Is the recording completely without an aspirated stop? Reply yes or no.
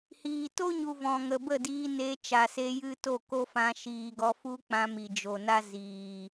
yes